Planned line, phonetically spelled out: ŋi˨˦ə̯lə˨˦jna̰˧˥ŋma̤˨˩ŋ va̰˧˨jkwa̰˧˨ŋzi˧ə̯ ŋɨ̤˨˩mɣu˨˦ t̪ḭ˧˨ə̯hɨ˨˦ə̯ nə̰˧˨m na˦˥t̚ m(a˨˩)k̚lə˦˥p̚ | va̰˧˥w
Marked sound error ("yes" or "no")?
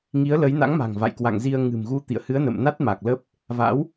no